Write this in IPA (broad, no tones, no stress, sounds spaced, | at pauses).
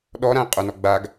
ɗ ɔ ɾ ã e̯ qʼ ɵ n ɔ ɡ͡b a ɡ